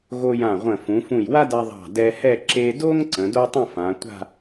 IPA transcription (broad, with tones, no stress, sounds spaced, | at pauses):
ɣ o˧ j ã˧˩ ʁʷ ə̃˧˩ f ũ˩˧ f ũ˧˩ j w a˥ d a˧ ðˤ ɑ̤˧˩ d ɛ˧ h ɛ˥˧ ǁ e˧ d o˥ ŋ ǀ ə̃˩˧ d o˥ tˤ ə̃˥˧ f ã˩˧ tʷ a̤˥˧